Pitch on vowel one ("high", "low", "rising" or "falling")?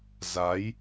rising